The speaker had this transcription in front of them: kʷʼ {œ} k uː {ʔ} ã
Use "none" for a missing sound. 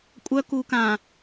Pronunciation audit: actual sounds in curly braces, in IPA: œ, k

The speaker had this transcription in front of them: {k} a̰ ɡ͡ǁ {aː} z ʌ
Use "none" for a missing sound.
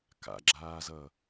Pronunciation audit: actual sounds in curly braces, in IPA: k, aː

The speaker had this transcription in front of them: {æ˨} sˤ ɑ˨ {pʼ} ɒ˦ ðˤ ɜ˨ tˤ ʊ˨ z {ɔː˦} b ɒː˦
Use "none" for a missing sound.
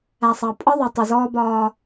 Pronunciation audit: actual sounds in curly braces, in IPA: æ˨, pʼ, ɔː˦

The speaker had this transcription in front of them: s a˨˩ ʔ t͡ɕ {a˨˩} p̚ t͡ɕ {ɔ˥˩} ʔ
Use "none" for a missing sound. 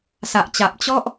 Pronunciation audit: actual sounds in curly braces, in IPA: a˨˩, ɔ˥˩

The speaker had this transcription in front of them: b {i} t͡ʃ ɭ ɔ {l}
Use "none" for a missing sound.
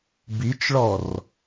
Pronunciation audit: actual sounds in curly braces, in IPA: i, r

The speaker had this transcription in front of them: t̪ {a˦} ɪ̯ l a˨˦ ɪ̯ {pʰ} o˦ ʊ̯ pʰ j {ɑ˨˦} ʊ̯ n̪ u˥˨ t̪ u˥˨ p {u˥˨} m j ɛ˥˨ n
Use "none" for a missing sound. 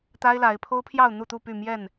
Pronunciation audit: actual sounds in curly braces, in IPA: a˦, pʰ, ɑ˥˨, y˥˨

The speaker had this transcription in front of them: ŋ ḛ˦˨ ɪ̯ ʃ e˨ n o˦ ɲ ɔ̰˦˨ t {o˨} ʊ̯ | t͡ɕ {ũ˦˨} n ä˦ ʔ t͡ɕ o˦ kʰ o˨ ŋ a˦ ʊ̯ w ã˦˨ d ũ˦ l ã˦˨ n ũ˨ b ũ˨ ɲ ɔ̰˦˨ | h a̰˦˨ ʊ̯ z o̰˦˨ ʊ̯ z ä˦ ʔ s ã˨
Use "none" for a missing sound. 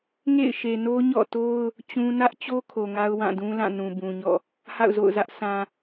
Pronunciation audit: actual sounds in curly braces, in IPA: o˦, ũ˦

